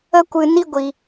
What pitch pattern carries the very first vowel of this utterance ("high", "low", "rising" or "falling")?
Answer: high